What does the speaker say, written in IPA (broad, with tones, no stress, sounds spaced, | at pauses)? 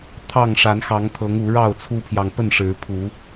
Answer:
t̪ʰ ɑ˥˨ ŋ ʂ a˨˦ n x ɑ˨˦ ŋ t̪ʰ ɤ˨˦ ŋ u˨˦ ɻ ɑ˥˨ ʊ̯ t͡sʰ u˦ pʰ j ɑ˨ ŋ p ə˥˨ n ʂ ɻ̩˨˦ pʰ u˨˦